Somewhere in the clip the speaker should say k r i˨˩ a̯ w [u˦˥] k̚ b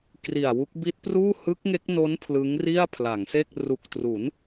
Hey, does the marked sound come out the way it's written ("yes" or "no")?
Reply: yes